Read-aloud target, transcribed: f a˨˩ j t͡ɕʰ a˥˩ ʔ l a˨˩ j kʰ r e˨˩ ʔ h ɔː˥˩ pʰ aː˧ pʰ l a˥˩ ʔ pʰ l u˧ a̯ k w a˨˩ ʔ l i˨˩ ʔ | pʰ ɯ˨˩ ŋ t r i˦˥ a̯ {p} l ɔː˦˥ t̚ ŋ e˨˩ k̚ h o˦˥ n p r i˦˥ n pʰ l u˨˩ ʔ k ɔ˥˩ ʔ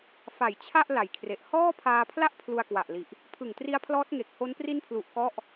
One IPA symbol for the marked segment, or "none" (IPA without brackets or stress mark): pʰ